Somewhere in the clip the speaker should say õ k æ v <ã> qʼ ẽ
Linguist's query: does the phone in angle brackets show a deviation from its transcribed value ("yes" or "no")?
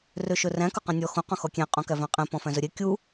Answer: yes